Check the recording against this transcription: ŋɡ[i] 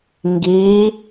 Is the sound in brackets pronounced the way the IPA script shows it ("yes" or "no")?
yes